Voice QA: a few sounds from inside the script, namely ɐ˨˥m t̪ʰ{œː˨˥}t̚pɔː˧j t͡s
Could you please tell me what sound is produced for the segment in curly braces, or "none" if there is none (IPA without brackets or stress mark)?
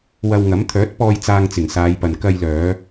œː˨˥